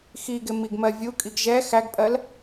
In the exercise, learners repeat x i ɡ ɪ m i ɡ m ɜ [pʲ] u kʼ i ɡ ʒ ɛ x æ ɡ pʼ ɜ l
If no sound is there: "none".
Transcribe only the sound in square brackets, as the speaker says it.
vʲ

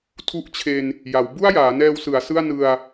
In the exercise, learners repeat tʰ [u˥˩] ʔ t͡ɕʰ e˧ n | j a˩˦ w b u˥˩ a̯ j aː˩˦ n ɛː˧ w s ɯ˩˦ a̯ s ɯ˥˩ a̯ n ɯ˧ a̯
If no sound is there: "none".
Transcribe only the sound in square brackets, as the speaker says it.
u˥˩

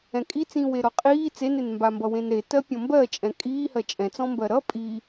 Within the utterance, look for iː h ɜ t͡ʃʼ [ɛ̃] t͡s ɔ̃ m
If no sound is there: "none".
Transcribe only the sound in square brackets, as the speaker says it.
ɛ̃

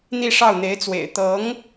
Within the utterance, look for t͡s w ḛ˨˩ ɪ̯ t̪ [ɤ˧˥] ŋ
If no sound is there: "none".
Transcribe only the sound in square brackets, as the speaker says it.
ɤ˧˥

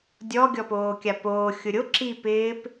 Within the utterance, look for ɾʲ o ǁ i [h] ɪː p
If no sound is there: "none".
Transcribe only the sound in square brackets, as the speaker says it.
p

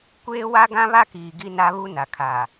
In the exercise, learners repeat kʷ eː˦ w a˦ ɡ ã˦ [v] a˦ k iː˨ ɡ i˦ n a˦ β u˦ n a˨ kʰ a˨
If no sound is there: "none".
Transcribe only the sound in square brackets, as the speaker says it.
β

